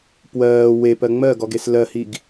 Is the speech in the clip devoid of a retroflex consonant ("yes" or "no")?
yes